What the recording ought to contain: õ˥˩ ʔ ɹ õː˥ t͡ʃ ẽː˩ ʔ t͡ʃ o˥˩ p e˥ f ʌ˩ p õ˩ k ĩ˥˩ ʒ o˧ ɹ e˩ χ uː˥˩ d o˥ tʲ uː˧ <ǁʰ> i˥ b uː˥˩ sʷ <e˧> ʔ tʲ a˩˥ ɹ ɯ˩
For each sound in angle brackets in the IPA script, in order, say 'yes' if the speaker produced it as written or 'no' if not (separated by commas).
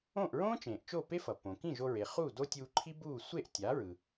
no, no